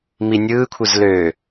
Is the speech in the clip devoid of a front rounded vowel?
no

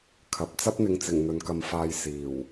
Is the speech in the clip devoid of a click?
yes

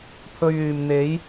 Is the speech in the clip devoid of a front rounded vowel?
no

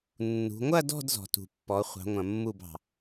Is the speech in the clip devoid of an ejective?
yes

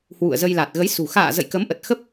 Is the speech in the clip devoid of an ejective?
yes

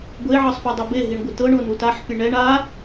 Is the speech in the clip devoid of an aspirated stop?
yes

